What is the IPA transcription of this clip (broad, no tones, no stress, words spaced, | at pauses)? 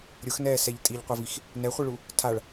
ɾʲʊxnɛːsɛʎ tʼiʎqʷɤvix | nɛχʷiɭu | tʰaɭ